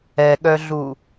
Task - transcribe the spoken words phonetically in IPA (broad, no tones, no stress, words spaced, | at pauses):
ɛɠœɮu